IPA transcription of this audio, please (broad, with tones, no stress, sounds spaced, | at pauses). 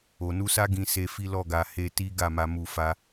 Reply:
o˨ n u˧ s a˦ ɡ ĩ˧ s e˧ f i˦ l ɔ˦˨ ɡ a˧ h e˧ t i˦ ɡ a˦˨ m a˧ m u˧ f a˦